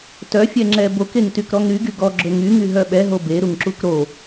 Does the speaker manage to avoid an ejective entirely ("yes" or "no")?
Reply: yes